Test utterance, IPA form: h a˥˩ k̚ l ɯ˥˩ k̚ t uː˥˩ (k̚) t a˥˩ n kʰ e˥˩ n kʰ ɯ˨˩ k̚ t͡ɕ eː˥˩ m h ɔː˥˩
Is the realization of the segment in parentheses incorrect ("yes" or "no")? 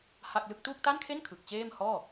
no